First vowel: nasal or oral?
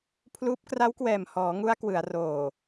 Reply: oral